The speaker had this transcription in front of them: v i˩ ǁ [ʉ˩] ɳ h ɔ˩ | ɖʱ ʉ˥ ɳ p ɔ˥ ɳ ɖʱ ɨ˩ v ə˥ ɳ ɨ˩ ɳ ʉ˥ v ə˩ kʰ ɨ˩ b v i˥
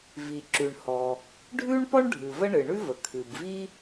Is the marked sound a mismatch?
no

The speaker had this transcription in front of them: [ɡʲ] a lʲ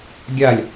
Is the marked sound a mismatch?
no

